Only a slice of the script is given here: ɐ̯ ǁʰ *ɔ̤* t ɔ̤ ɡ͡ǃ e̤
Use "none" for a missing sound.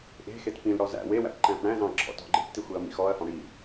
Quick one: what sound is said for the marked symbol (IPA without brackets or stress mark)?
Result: ɔ̰